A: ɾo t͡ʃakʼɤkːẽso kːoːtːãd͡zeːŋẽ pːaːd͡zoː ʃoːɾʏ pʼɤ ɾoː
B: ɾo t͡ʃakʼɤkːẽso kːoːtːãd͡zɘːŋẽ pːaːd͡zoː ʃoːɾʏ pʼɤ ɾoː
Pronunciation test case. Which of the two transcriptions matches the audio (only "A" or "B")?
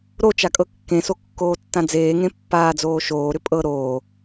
A